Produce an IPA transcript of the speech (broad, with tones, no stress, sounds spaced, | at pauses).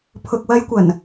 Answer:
pʰ ʊ˨ k̚ w ɐ˨˧ j kʷ ɐ˨˩ n